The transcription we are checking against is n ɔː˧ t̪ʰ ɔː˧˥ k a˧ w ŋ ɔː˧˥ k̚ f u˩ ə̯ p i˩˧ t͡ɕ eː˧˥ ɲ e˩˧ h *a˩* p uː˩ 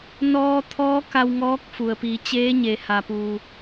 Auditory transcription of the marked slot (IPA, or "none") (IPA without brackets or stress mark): a˩